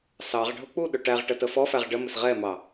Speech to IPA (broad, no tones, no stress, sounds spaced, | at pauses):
s ɑ ʁ ɖʱ ʊ k͡p u ɗ ʊ ʈ æ ʁ ʈ ə t ə f ɔ f æ ʁ ɖ ə m ɪ s ʁ ɛ m ɑ